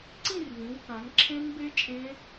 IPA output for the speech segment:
ǀ ĩ˥˧ r v ĩ˩˧ w k ã˩˧ ŋ ǁʰ ẽ˦˥ ŋ b e˦˥ t͡ʃʼ ẽ˦˥

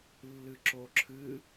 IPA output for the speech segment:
lː ɨ ǁ o ǁʰ ɨ

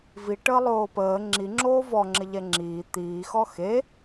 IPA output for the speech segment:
v i ʈ əː lˠ oː p əː ŋ͡ǁ i ŋ͡ǁ oː v ɔ ŋ͡ǁ ɪ ʎ ɛ ŋ͡ǁ iː t̪ iː x ɔ x e

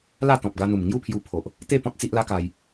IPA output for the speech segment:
l a˥˧ t̪ ɔ̃˨ p̚ ɡ a˧ n̪ u˨˩ m ŋ j u˥˧ pʰ j u˧ pʰ o˨ ʔ | t̪ e˥˧ p ɔ̃˦ t̚ t͡s i˦ ʔ l a˦ k a˧ j

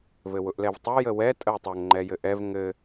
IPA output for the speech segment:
v ɘ w ʊ ʔ l ɛ v tˤ ʊ j ə w ɛ tʼ ə w tˤ ʊ ŋ ŋ͡ǃ ɛ j ɘ ʔ ɛ v ŋ ɘ

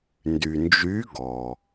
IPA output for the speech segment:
n d y˩ n d͡ʒ y˨˦ ɡ ɔ˩

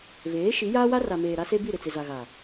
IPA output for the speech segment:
v eː˨˦ ʃ i˨˦ j aː˦ w a˦ r a˨ m eː˨ ɾ a˦ s e˦ b i˦˨ ɾ ɪ˦˨ t͡s ɪ˨ z a˨ ɣ a˨

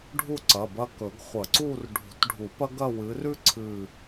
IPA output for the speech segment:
ɖʱ u˥˧ ǀ ɐ˩˧˩ b ɐ˥˧ k ɵ˨˩˦ ɡ χʷ ɐ˨˩˦ ǀ u˥˧ r ɖʱ ṳ˨˩˦ t ɖʱ u˨˩˦ p ɐ˥ ɡ ɐ˥˧ w ɨ˨˦ r ʉ˥ ǀʰ ɨ˥˧

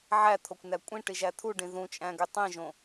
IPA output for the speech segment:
ʕ æ t̪ʰ o kʷ n æ kʷʼ ĩ ʈ i ʒ æ t̪ʰ u ɖ ĩ ð ũ t͡ʃʼ æ̃ ɡ y tˤ ĩ ʒ õ

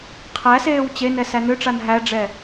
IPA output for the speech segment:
qʰ æ s eː w t͡ɕ e n ɛ s æ n ø ʈ͡ʂ a n ɦ æ ɖ͡ʐ ɛ

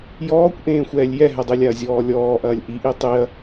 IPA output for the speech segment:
j ɔː kʷ ʔ ẽː xʷ ɛː lʲ j ɛ ɦ ɛ dˤ i lʲ a ɐ̯ zʲ ɔː lʲ ɔː ʔ ɐː lʲ ʔ i ʔ i tˤ i ɐ̯

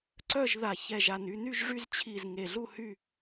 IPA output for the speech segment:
ǀ œ˦˨ ʒ ð a˨˩ ç ɛ˨˩ ʒ a˨˩ n y˦˨ n y˦˨ ʒ ʐ y˦˨ z t͡ɕʰ i˨˩ z ŋ e˨˩ ɮ u˦˨ h y˦˨

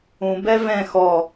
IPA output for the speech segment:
ũ b ɛ v ɛ̃ x ɔ

